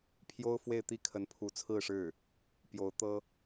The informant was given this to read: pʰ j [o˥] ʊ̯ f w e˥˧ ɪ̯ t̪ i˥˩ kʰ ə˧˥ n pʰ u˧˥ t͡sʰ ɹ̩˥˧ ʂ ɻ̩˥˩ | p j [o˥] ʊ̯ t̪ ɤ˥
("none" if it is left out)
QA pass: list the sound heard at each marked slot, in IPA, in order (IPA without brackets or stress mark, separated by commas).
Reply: o˥, o˧˥